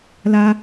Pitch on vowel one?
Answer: high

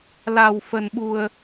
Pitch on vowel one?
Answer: low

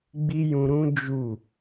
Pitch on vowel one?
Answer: high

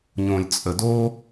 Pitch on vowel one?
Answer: low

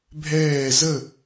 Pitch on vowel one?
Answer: falling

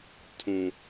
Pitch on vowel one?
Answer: low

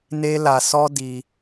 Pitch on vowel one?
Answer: high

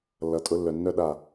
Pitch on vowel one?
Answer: low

